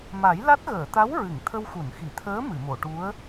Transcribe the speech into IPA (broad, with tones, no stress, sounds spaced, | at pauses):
m a˨˩˦ j l a˦˥ t̚ ɣ əː˨˩˨ t̪ a˧˥ w ɹ ɨ˨˩˨ ŋ t̪ʰ ə˧ w x u˨˩˨ n x i˨˩˨ t̪ʰ əː˧˥ m ɨ˨˩˨ m o˨˩˨ ʈ u˧˥ ə̯